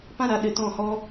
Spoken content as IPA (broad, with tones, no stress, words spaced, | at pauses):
pã˦ɾa˨ ɗɨ˨tɔ̃˦˨hɔ˦